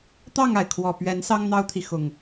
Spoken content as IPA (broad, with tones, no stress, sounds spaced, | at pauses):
t̪ ɑ˥˨ ŋ a˩ ɪ̯ kʰ w ɔ˨˩ p ɥ ɛ˨˦ n s ɑ˦ ŋ n̪ ɑ˦ ʊ̯ t̪ʰ i˨ x ʊ˨˩ ŋ